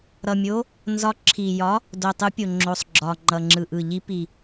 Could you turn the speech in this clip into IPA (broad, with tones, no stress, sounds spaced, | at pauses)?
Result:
ɾ ʌ˨˩ mʲ o˨˦ | n z ɒ˨˦ ǁʰ i˨˩ j ɒ˨˦ | d o˨˩ tˤ ɯ˨˦ pʲ o˨˩ ŋ͡ǁ o˨˩ sˤ ɡ͡ǁ ɒ˨˩ ŋ͡ǃ ʌ˨˩ ŋ͡ǁ ɯ˨˩ ʔ ɯ˨˩ ʎ i˨˦ p i˨˩